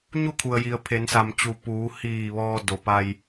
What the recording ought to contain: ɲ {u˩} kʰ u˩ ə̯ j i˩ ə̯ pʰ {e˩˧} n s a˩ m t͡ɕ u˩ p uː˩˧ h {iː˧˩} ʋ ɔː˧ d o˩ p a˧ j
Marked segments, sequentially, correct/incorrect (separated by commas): incorrect, correct, correct